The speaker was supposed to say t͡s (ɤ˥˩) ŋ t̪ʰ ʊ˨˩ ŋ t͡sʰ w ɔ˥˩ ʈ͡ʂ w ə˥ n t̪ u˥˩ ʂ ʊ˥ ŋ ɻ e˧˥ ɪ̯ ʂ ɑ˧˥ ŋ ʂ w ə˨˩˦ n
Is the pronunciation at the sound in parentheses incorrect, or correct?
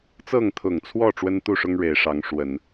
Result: correct